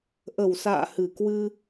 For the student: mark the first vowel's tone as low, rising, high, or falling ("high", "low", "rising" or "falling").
low